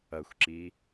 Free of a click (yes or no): no